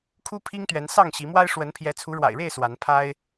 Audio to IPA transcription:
kʰ u˦ pʰ i˦ ŋ t̪ ɥ ɛ˨˦ n s ɑ˥˨ ŋ ɕ i˨˦ m w a˦ ɪ̯ ʂ w ə˨˦ n pʰ j ɛ˨˦ t͡sʰ u˨˦ ɻ w a̰˨˩ ɪ̯ ɻ e˥˨ ɪ̯ s w a˨˦ n pʰ a˦ ɪ̯

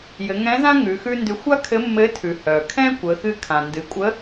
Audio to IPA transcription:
j ɘ˩˧ ŋ ɛ̃˧˥ z ã˥ ŋ ʉ˩˧ x ʉ˥ n d ʉ˧˥ xʷ a˥ kʰ ɘ˧˥ mː ɘ˧˥ tʰ ʉ˩ h œ˩ kʰ ɛ̃˥ kʷ ə˩˧ x ɨ˧ kʰ ã˩ n d ɨ˩˧ kʷʼ ə˧˥

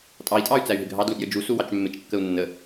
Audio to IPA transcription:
tʼ ɑ i̯ tʼ ɑ y̯ t͡s æ y̯ ɦ ɪ ɡʱ ɑ d l u ʔ j ə d͡ʒ u s u w ɑ t͡ʃ mː ɪ t͡ʃ kː ə u̯ nː ə

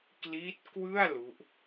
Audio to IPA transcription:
k l i˦˥ t̚ k w ɯ˥˩ a̯ l u˦˥ ʔ

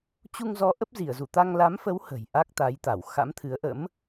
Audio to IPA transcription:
t͡ɕ u˧ ŋ z ɔ˨˦ ʔ ə˦˥ p̚ z i˧˩ ə̯ z u˧˩ t̪ a˧ ŋ l a˨˦ m f ə˨˦ w h ə̤˨˩ j ʔ a˦˥ k̚ t̪ a˨˦ j t̪ a˧˩ w x a̰˧˥ m t̪ʰ ɨ˨˦ ə̯ ʔ ə̰˧˥ m

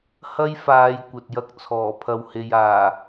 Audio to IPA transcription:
h ɐ˥ j f aː˨˧ j kʷ ɐ˨ t̚ j ɐ˥ k̚ t͡sʰ ɔː˨˩ pʰ ɐ˨ w h e˨ j aː˨˩

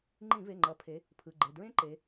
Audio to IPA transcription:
ŋ͡ǃ ĩ˧˩˧ v e˩˧˩ ŋ͡ǃ ʌ˩˧ pʰ e˩˧ | pʰ ɯ˩˧˩ ɡ͡ǃ e˩˧˩ d ɹ ẽ˥ ǃ e˩˧

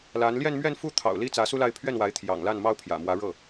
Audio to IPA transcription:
l a˧˥ n l j ɛ˥˧ n m ɥ ɛ˥˧ n f u˥˩ t̪ʰ ɑ̰˨˩ ʊ̯ l i˥ t͡s ä˧˥ s u˥ l a˥˧ ɪ̯ pʰ ɥ ɛ˥˩ n w a˧˥ ɪ̯ t̪ʰ j ɑ̰˨˩ ŋ l a˥˩ n m ɑ˥ ʊ̯ pʰ j ä̰˨˩ m w ä˧˥ ɻ ɤ˥˩

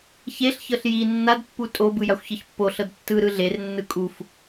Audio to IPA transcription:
ç e ɬ ç ɤ ɬ j i nː a d pː u tʼ o b ɯ j a xʷ ç ɤ ç pː o ɬ ɤ d tː ɯ ɾ ɯ ɮ e r nː ɯ kʼ u f

